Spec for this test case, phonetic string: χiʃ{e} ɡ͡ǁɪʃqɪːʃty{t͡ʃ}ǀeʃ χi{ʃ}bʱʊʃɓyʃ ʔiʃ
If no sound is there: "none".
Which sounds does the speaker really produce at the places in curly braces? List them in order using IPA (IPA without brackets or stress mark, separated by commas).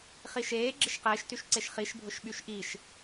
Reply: eː, ʃ, ʃ